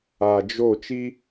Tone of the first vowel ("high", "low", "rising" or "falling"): low